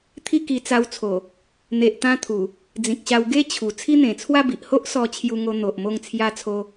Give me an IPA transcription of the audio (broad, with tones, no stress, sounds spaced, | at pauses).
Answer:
t̪ʰ i˦ k i˧ t͡s a˧ w t͡sʰ o˨˩ | n̪ e˨ ʔ t̪ ã˧ t̪ʰ u˨˩ | d͡z ĩ˨ k̚ ɕ a˧ w ɡ e˦ t͡ɕʰ u˨˩ t͡sʰ i˦ n̪ ẽ˨˩ t͡sʰ w a˥˧ b i˨ ʔ h o˦ ʔ s ɔ˧ t͡ɕʰ j u˧ ŋ o˧ n̪ o˨ ʔ m o˧ ŋ t͡sʰ j a˧ t͡sʰ o˧